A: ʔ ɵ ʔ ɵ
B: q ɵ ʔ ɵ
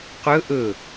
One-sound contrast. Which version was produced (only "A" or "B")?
B